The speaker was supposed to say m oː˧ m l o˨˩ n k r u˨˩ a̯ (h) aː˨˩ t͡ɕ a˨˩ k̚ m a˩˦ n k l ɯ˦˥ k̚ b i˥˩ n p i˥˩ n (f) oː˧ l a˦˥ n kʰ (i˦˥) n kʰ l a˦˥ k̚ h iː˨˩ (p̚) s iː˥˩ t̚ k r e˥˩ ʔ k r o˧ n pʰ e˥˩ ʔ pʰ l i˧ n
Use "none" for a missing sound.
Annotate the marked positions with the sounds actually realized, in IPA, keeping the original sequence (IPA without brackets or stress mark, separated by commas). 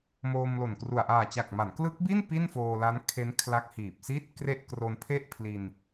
ʔ, f, e˦˥, p̚